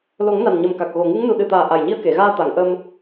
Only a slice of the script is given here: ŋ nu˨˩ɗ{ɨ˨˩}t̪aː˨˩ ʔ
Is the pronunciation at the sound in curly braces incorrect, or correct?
correct